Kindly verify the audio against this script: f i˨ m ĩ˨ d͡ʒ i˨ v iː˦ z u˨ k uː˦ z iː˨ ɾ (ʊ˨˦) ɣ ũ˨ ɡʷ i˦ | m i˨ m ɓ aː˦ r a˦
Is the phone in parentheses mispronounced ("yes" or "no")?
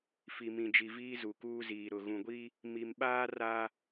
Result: yes